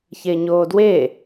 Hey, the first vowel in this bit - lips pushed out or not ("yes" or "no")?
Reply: no